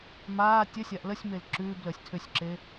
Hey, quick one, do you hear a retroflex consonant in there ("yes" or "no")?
no